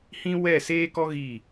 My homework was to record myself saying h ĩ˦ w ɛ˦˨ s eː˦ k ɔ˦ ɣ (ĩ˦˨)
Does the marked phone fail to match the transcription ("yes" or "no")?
yes